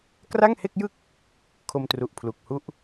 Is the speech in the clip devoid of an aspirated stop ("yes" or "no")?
no